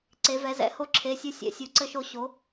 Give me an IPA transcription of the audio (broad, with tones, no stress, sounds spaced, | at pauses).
ǀ e˧˥ v ɛ˧˥ z ɛ̰˧˥ h o˥ ǁʰ e˧˥˧ sʲ o˥ sʲ ɛ̰˧˥ sʲ u˧˥ ǀ ɘ˥ ʃ o˥ ɕ o˧˥